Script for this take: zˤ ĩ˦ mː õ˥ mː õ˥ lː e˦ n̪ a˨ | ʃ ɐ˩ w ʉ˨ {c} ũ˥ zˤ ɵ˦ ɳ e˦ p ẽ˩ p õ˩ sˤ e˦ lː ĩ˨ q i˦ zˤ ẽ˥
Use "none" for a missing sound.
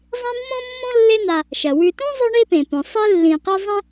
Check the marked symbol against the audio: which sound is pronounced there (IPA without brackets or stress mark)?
t